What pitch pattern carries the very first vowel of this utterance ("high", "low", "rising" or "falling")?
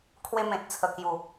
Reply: high